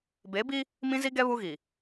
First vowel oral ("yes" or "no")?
yes